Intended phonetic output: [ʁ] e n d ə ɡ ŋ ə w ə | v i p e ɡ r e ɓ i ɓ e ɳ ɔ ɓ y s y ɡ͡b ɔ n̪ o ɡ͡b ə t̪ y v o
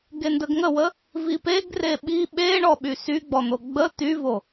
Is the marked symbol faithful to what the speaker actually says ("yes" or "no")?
no